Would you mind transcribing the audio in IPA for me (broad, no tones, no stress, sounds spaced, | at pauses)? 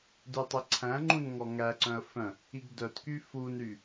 d ʉ tˤ e ǀʰ æ̃ ŋ͡ǃ ũ n ŋ ɔ ŋ æ ǀ œ̃ ə̯ f œ̃ | i ɡ d œ t k y f u n ɾ y